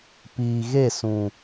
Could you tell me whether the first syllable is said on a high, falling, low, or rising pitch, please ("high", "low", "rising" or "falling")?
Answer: low